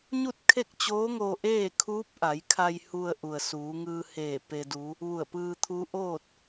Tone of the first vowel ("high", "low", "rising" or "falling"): falling